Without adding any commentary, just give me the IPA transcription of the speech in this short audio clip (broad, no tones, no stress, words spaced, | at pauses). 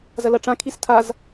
zɐlɐʈ͡ʂã kʰistʰaz